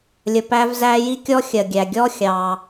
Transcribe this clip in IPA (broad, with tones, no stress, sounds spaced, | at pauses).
lʲ ə˩ p æ˧ v z æ˧ j i˥ kʲ ɔ˥ xʲ ɜ˩ ɡʲ æ˩ ɡʲ ɔ˥ xʲ ɑ˩